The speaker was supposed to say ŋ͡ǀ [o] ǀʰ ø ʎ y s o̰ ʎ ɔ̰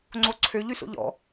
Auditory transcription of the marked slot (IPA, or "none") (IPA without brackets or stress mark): o